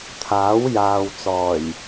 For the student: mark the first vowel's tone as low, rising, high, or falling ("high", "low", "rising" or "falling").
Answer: rising